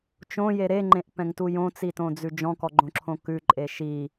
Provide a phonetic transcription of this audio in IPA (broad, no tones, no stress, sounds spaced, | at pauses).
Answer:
t͡ʃ õ j e ɾ e ŋ͡ǃ ẽ ʔ p ɛ̃ ŋ t u j õ t͡s i t õ d͡z ʉ d͡ʒ ɔ̃ k ɔ ɡ͡ǃ õ ǁʰ õ k ʉ ǃʼ e ʃ i